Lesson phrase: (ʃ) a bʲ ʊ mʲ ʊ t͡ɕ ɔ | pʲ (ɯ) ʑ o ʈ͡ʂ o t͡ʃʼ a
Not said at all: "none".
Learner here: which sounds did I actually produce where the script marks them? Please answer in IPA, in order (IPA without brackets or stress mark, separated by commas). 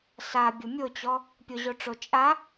s, ʊ